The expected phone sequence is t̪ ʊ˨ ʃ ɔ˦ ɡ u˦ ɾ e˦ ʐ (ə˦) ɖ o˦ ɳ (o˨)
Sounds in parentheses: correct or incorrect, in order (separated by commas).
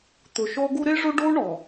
incorrect, incorrect